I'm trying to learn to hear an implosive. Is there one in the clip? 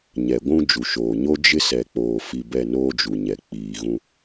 no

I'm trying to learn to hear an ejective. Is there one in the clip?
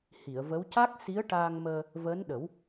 no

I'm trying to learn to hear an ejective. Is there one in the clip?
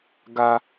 no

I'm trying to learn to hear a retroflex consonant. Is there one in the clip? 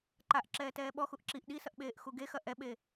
no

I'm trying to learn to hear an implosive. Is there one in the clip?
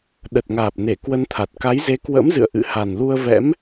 yes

